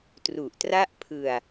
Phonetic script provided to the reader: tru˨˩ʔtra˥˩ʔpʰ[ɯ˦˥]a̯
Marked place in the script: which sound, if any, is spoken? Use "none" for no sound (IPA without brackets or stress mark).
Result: ɯ˧